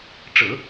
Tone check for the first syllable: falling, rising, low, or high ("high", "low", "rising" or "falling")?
low